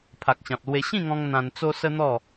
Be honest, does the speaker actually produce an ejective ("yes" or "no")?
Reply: no